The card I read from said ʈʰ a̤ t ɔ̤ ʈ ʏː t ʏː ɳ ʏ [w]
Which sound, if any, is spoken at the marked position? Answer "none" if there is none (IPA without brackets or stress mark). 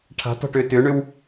w